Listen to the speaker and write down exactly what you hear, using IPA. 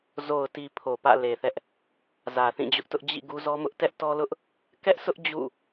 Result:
z o˨ ʊ̯ t i˨ pʰ o˨ p ä̰˦˨ l e˨ θ ɛ˦ ʔ | z ä˨ θ ĩ˦˨ d͡ʑ ʊ˦ ʔ t ʊ˦ ʔ d͡ʑ ḭ˦˨ ɡ u˦ z ɔ˦ m ʊ˦ ʔ t ɛ˦ ʔ t ɔ˦ l ʊ˦ ʔ | k ɛ˦ ʔ s ʊ˦ ʔ d͡ʑ ṵ˦˨

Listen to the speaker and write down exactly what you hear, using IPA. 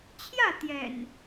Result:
t͡ɕʰ j ä˥˨ t̪ j ɛ̰˨˩ n

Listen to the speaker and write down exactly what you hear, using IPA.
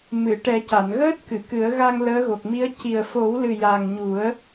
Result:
m ɨ˨˩˨ ʈ ɛ˨˩˦ c a˨˩˨ n ɣ əː˦˥ t̚ k ɨ˨˩˨ k ɨ˨˩˦ ə̯ ɣ a˧ ŋ l əː˧˥ ɣ o˨˩ k̚ m i˧˥ ə̯ c i˨˩ ə̯ f o˨˩˦ w l ɨ˨˩ j a˨˩ ŋ ɲ u˨˩˦ ə̯

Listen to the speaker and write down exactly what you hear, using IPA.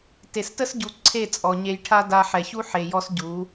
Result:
t e˨ s t ə˦ s ɟ u˨ ǀʰ e˦˨ t͡sʼ ɔ˨ ɲ e˧ j ʈʰ a˦ d a˧ ħ ɛ˨ ç u˦ ħ e˨ j ɔ˧ s ɟ u˨˦

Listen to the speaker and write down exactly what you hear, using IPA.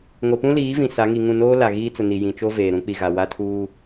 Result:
ŋ o˨ p ũ˦ l iː˨˦ v ĩ˨ s a˨˦ ŋ i˨ ŋ ũ˦˨ n oː˦ l a˨ ɣ iː˦ t͡s ʊ˨ n i˨ j ĩ˨ t͡ʃ o˦ v eː˨ ɾ ũ˨˦ k͡p i˨ ɣ a˨ w a˦ tʰ uː˦

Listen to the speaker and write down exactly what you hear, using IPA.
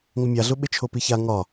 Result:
ŋ ʊ mʲ a ɮ ʊ ɓ ɪ t͡ʃʰ o p i ç a ŋ ɒ

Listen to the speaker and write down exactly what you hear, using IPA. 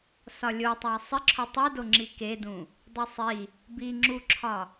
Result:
s ɒ lʲ o tˤ æ sˤ i ǁʰ o tˤ i d o ŋ͡ǁ i k e d ũ | dˤ o sˤ i | b i ŋ͡ǁ u ǁʰ ɒ

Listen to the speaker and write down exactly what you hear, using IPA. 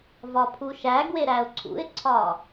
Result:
v ɒ pʰ u ʃ æ ɡ w e ɾ æ ʊ̯ ǀʰ ṵ ɪ̯ ǀʰ ɒ

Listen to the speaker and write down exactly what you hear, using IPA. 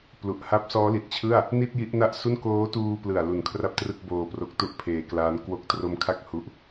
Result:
p l u˨˩ ʔ h a˦˥ p̚ s ɔː˦˥ l i˨˩ t̚ t͡ɕʰ ɯ˥˩ a̯ | n i˥˩ t̚ j i˦˥ ʔ n a˥˩ ʔ s u˥˩ n k oː˦˥ t uː˧ p l ɯ˨˩ a̯ l u˨˩ n kʰ r a˥˩ p̚ t r ɯ˥˩ k̚ b oː˧ p r o˦˥ k̚ t u˥˩ ʔ pʰ eː˧ k l aː˦˥ n k w o˦˥ k̚ t r o˦˥ m kʰ a˥˩ k̚ h u˦˥ ʔ

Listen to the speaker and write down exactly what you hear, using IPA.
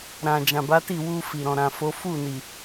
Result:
ɾ ã˨ d͡ʒ ã˨ b a˨˦ t i˦˨ w u˧ f i˨ ɾ ɔ̃˨ ɾ ã˨ f o˨˦ f u˦˨ n i˨

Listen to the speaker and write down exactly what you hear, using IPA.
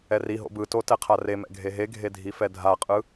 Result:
ɛ r i ɦ o̰ b ɯ t o t ɛ qʰ a r e m ɛ̰ ɡʱ e ɦ e ɡʱ e dʱ i f ɛ dʱ a qʼ ɯ

